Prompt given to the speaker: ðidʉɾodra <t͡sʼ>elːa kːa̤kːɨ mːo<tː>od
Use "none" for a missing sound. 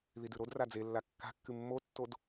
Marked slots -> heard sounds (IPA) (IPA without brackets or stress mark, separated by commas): d͡z, tː